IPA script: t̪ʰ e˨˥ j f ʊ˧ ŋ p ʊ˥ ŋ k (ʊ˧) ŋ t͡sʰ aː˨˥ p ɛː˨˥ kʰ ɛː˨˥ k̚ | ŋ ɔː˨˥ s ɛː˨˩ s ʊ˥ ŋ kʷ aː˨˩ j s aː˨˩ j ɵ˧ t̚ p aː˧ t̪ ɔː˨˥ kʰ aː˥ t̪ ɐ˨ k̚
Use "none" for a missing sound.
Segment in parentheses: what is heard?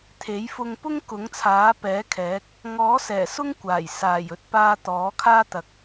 ʊ˨˥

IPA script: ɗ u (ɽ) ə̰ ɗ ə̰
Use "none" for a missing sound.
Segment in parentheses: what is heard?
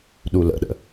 l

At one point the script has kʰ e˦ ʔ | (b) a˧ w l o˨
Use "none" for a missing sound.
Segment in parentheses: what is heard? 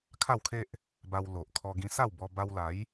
b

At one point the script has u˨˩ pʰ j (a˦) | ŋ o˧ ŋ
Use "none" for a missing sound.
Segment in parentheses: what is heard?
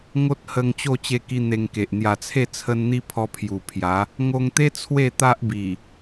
a˨˦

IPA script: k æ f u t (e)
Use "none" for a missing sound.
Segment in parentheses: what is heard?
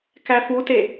e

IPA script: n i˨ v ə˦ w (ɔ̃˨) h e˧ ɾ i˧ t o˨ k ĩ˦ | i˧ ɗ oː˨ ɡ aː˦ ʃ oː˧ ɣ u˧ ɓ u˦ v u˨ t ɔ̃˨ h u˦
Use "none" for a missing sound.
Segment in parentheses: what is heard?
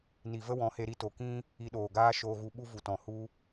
ɔ̃˨˦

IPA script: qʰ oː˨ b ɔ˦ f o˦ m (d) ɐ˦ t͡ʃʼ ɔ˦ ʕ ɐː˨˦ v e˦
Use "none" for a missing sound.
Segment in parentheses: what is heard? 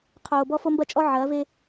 b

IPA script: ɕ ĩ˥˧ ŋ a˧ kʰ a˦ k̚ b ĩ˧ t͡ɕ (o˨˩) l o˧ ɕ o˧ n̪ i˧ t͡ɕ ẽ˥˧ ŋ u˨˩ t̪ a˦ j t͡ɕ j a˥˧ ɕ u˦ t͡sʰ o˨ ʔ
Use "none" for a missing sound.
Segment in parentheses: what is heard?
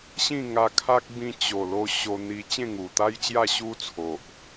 o˨˩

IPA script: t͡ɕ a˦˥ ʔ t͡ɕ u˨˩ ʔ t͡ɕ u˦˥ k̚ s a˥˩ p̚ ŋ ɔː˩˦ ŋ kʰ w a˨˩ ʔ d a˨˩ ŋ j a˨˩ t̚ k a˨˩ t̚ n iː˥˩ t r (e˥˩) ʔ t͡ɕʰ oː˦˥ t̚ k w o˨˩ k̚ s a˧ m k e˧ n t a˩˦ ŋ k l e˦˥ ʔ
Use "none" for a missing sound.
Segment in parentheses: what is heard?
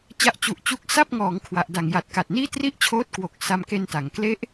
i˥˩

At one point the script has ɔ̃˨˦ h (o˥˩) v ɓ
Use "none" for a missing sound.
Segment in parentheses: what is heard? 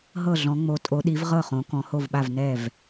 o˥˩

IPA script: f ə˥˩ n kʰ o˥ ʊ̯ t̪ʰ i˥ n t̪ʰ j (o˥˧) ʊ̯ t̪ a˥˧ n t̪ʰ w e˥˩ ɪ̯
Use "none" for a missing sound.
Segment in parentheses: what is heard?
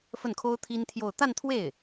o˥˧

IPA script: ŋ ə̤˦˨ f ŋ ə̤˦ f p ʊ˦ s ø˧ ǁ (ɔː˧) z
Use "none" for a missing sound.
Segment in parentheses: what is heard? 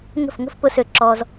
ɔː˧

